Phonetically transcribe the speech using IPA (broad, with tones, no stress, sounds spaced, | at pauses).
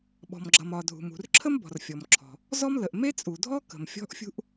ɓ ɔ̤˩ m ɡ͡ǁ ʌ˩ m ɒ˩ dʱ ṳ˩ m ṳ˩ r ǁʰ ə˥ m b ɔ̤˩ r fʲ ɔ˩ m ǁʰ ɔ̤˩ | z ɔ˥ m l ə˩ ʔ m e˥ t͡sʼ u˩ dʱ ɔ˥ k ə̤˩ m fʲ ɔ̤˥ ʔ fʲ ṳ˥ ʔ